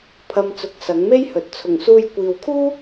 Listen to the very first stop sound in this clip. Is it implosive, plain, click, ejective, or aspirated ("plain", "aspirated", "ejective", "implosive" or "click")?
aspirated